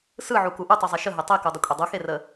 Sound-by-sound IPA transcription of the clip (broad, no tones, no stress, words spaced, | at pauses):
sɯʕuku ʔutˤuzˤɛ ʃəɦe tˤekudˤəkʷʼe dˤuxerə